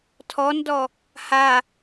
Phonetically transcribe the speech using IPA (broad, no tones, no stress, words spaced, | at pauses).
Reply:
tʰɔndɔ | ha